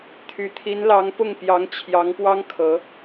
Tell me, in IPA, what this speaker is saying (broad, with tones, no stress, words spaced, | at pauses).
t̪ʰy˨˩t̪ʰi˧˥nlɑ˧˥ŋ pʊ˥˩ŋpjɑ˧˥ŋt͡ɕʰjɑ˧˥ŋ pwɑ˥ŋ kʰɤ˧˥